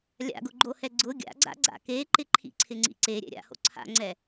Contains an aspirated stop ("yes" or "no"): yes